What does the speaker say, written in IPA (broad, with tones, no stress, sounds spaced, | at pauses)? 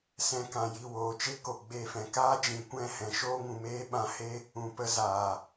s ɛ̃˧ k ã˨ j i˦˨ w oː˨ t͡ʃ e˦ k o˨ ɡ͡b e˦˨ f ɛ̃˧ k aː˦ d͡ʒ ĩ˨ kʷ ɛ̃˦˨ h ɛ̃˨ ʃ oː˦ ŋ ũ˨ m eː˦ ɓ ã˧ h e˦ | ũ˨ p ə˧ z aː˨